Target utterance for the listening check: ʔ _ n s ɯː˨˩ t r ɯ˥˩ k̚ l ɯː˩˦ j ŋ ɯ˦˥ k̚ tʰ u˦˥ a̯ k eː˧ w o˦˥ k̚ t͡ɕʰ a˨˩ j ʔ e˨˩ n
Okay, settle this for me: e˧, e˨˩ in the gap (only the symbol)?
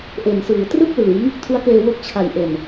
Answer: e˨˩